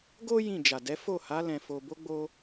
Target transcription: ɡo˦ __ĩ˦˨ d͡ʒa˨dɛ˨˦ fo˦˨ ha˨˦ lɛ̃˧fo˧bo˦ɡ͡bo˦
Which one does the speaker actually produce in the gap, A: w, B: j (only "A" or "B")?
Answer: B